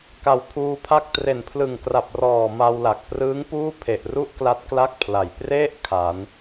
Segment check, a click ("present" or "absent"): absent